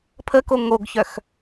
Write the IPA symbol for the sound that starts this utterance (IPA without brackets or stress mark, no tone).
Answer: pʰ